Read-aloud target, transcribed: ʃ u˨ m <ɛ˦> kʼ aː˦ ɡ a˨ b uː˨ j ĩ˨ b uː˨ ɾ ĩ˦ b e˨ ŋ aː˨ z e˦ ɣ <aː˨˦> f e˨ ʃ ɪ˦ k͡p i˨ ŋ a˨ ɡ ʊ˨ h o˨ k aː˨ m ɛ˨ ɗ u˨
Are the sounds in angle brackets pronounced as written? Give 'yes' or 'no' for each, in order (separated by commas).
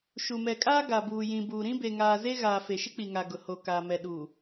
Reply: no, no